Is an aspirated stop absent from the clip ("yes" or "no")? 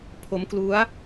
no